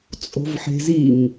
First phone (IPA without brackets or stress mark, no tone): t͡sʼ